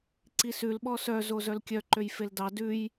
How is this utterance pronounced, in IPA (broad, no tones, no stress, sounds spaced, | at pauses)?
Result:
ǀ i s ʉ l ɓ ɔ s œ z o z œ l kʲ œ ǃ ø j f e l d ɑ d ʉ j